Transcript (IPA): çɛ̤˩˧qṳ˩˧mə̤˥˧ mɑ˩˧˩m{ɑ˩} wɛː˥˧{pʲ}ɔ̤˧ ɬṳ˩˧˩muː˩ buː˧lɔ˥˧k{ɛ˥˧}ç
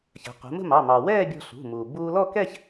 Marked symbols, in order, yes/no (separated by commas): yes, no, yes